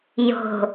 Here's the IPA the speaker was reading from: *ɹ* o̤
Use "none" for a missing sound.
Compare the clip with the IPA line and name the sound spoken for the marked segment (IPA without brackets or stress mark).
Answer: j